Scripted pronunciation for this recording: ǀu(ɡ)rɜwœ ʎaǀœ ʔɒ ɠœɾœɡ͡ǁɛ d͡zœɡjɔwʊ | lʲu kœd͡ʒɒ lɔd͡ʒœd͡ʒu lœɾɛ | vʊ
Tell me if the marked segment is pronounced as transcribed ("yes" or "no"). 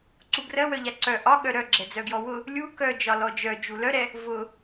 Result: yes